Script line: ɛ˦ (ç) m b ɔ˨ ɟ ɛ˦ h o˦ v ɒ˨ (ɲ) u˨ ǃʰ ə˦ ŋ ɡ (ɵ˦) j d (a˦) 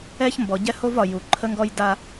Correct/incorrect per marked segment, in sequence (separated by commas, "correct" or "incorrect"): correct, incorrect, incorrect, correct